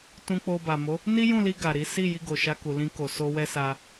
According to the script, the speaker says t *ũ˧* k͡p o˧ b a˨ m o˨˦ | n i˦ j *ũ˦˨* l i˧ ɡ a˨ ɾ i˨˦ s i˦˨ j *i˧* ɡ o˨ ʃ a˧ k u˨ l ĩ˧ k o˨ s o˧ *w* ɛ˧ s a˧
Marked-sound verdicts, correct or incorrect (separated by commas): correct, correct, correct, correct